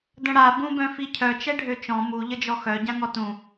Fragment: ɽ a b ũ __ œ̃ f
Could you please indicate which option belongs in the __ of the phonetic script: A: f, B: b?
B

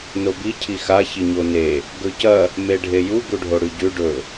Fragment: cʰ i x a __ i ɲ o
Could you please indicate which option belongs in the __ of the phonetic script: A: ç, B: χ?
A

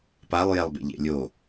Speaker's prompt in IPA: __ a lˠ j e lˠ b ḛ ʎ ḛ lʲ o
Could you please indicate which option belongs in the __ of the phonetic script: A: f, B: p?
B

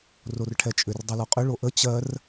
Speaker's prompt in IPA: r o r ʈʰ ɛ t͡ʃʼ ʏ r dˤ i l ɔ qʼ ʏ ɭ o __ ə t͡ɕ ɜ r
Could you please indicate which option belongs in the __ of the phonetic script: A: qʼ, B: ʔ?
B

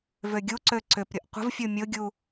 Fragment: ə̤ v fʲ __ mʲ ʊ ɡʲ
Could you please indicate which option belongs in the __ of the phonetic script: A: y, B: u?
B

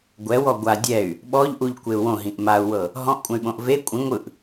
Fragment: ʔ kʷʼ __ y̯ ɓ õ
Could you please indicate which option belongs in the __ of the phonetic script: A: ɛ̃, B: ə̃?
A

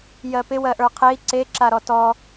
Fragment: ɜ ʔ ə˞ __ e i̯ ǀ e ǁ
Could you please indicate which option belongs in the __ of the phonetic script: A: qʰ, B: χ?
A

